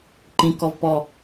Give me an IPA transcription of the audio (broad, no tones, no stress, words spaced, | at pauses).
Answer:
ǃĩ kɔvpɔ